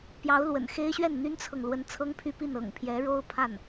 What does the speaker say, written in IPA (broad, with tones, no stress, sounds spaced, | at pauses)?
p j ɑ˧˥ ʊ̯ l w ə̰˨˩ n x e˥ ɪ̯ ɕ ɥ ɛ˥˩ n n̪ y˥ n t͡sʰ ɤ˨ ŋ l w ə˧˥ n t͡sʰ ɤ˥ ŋ pʰ y˥ p i˥˩ n ɤ̰˨˩ ŋ pʰ j ɛ˧˥ ɻ o˥ ʊ̯ pʰ a˥˩ n